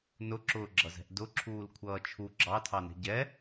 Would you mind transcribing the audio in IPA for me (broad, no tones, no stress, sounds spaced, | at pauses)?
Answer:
n ʊ ǁ ʊː ɡ͡ǁ ʌ z ɛ̤ ʔ d ʊ ǁʰ uː l kʷʰ ʌː t͡ʃʰ u ɡ͡ǁ ɑ tʰ ɑ n ɛ̤ ɟ ɛ